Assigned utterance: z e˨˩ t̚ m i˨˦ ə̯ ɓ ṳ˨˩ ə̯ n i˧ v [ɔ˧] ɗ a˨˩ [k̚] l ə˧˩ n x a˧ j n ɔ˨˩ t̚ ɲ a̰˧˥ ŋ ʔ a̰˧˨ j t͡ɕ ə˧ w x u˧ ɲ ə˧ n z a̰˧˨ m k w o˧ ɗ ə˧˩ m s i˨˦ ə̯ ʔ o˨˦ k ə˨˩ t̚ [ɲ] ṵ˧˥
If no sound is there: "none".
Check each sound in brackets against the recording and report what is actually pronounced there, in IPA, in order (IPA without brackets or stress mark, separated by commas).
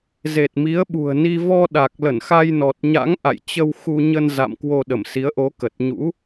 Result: ɔ˧, k̚, ɲ